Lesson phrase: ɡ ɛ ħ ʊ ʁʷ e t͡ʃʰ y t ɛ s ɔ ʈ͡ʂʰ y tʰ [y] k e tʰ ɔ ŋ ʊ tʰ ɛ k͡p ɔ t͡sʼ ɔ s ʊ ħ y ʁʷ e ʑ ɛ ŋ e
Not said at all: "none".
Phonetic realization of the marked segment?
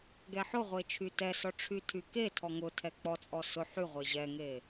y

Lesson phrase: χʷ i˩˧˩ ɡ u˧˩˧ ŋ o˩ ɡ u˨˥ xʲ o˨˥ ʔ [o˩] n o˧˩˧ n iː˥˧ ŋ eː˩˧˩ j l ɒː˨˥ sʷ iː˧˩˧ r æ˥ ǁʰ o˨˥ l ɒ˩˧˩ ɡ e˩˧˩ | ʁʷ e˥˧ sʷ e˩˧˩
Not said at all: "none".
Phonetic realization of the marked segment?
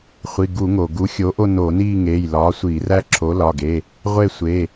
o˥˧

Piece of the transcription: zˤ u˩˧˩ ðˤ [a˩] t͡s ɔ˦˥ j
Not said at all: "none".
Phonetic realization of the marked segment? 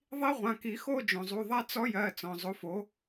a˥˧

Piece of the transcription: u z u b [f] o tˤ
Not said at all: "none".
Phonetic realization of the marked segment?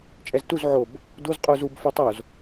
f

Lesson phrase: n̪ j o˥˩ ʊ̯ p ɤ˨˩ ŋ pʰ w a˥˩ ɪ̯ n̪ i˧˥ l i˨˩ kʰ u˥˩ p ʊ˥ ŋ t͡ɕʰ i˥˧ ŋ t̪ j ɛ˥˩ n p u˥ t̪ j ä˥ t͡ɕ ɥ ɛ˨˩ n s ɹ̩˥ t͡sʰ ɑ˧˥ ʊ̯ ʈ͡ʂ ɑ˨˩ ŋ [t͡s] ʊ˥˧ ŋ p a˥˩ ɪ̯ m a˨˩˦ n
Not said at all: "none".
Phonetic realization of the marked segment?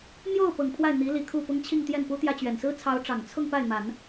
t͡sʰ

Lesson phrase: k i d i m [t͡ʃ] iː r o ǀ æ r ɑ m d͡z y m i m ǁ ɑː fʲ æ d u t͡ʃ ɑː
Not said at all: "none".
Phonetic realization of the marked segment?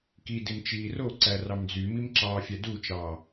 t͡ʃ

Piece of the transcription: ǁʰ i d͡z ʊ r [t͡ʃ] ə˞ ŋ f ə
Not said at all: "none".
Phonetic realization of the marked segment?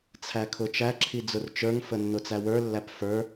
t͡ʃ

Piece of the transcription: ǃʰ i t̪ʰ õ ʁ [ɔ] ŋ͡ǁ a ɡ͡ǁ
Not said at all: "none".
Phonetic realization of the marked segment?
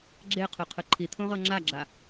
ɤ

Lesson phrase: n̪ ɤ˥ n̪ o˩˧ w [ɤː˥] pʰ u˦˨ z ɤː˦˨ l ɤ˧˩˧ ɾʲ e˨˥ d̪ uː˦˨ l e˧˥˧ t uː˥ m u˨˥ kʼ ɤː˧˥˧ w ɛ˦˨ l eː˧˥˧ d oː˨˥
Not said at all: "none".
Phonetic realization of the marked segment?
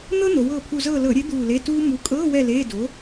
ɤː˦˨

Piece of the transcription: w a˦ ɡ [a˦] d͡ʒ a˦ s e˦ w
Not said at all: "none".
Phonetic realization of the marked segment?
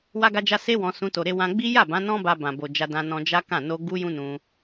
a˦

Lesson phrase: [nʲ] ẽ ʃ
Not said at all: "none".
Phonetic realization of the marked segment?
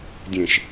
dʲ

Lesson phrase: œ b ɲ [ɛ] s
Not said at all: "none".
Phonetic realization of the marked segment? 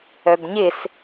ɪ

